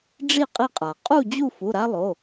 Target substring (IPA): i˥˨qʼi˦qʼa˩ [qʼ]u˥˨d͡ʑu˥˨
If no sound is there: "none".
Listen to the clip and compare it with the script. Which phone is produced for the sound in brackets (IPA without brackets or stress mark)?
qʼ